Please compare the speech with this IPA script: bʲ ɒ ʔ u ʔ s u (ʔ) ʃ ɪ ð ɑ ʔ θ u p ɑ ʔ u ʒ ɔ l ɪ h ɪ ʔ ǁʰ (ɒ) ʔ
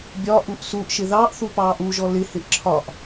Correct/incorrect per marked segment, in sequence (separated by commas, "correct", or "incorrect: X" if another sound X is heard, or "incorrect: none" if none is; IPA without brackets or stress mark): correct, correct